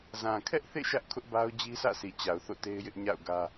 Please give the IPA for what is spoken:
zã˨kʰɛ˦ʔθḛ˦˨ ʃä˦ʔkʰʊ˦ʔba˦ʊ̯ d͡ʑi˦sä̰˦˨ si˨t͡ɕa˨ʊ̯ θo̰˦˨te˦ɪ̯jɪ˦ʔɲa̰˦˨ʊ̯ ɡä˦

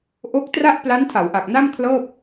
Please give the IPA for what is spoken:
ʔo˦˥k̚tra˥˩ʔ pla˦˥ntʰa˩˦wʔa˨˩k̚na˥˩m kʰlɤː˥˩p̚

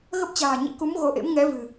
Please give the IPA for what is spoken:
ɣə˦˥p̚t͡ɕa̤ː˨˩ɲḭ˧˥ku˨˦m ɣo˨˦ʔḛ˧˥m ŋɛ˨˦ vɨ̤˨˩

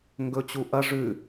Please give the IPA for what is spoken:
ŋɡɵt͡ɕu ʔɐ ʐʉ

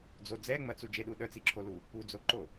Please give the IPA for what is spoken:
d͡zo d͡zɛŋ͡mɐt͡su d͡ʒeɗu ɗœt͡siǁʰolu | ud͡zoǃo

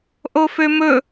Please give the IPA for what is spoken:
ʔofømɵ

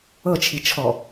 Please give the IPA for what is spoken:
ɤt͡ʃʰit͡ʃʰɔ

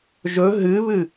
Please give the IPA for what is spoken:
ʒɵ ɦɨβɨ

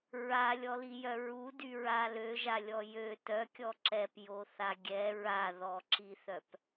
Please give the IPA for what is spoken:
ɹalʲɔlijœ ɹudyɹa løʒalʲɔ jø tœkʲɔ ǁɛpjoθa ɡʲɛ ɹaðɔǁiθœp

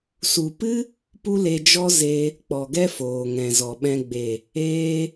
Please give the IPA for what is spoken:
su˨pɨ˦ | pu˦le˧d͡ʒɔ˦ ze˧ | k͡pɔ˨ɡɛ˦ foː˨ŋɛ̃˨zɔ˨ɓɛ̃˧ ɡ͡be˨ | eː˧

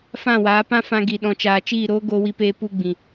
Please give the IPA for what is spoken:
fã˦˨waː˨˦ pã˦fã˧ ɡi˨ɗɔ̃˨t͡ʃaː˨ t͡ʃiː˦˨ɾoː˦ ɡoː˧wi˧peː˧ pu˧ɡ͡bĩ˨

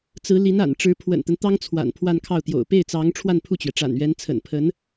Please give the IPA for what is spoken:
t͡sɹ̩˧˥li˧˥na̰˨˩n ʈ͡ʂɻ̩˧˥pʰwə̰˨˩nt̪ə˦n t̪ɑ˥ŋt͡sʰwa̰˨˩n pʰwa˥˧nkʰɑ˥˩ʊ̯ t̪jo̰˨˩ʊ̯pe˥˩ɪ̯t͡sɑ˧˥ŋ ʈ͡ʂʰwa˥˧npʰu˥˩t͡ɕɥɛ˩ ʈ͡ʂa̰˨˩nɥɛ˧˥n t͡sʰə̰˨˩npʰə˧˥n

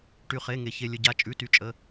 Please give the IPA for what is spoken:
ʈy˩χe˩˧˩ ŋe˩ çe˩ lʲə˩ɟa˩˧˩ t͡ʃʼʉ˩˧˩ty˩t͡ʃʼə˩˧˩

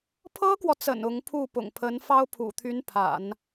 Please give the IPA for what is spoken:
pʰɤ˥kwɔ˨t͡sə̰˨˩n ʊ˧˥ŋpʰu˥˩ pʊ̰˨˩ŋpʰə˧˥nfɑ˥ʊ̯ pʰṵ˨˩t̪ʰy˧˥n pʰa̰˨˩˦n

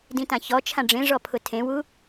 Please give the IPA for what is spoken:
dĩtãçɔt͡ʃʰã ɖ͡ʐẽʐɔ pʰʊtʰẽwu

